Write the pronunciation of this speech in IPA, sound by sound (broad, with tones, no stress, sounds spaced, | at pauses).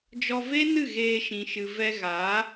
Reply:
d͡ʒ ɔ˧ v e˦ n ɨ˦˨ ɣ eː˧ ʃ ĩ˨ ʃ ɨ˨ v ɛ˧ ɣ a˨˦